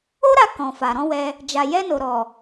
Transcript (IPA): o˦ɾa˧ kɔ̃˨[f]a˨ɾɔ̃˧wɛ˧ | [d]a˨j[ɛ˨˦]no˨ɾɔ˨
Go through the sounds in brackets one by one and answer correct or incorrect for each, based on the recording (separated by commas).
correct, incorrect, incorrect